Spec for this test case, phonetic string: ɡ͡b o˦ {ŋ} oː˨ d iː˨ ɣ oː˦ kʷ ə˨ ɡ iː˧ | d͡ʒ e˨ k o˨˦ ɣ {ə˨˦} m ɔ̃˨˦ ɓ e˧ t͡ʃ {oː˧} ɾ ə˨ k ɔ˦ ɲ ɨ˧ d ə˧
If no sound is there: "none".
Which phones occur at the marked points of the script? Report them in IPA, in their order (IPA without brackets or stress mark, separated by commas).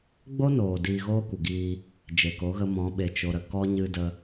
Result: n, ə˧, o˧